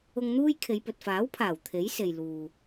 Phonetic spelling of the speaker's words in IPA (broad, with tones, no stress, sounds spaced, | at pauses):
ʊ˧ ŋ n̪ uː˥ j kʰ e˨˧ j p ɵ˨ t̚ f aː˨˥ w pʰ aː˨˩ w t̪ʰ e˨˥ j s e˨ j l uː˨